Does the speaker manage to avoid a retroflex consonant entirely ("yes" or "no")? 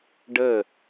no